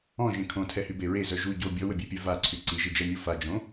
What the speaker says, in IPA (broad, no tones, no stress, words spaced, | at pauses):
ɔ̃ʒẽ kʰõtʰɛhybe ɹezœ ʒu ɟo bʲɔwəbʲɛpʲœ vaǀʰy ǀiʒid͡ʒɛmʲo fad͡ʒõ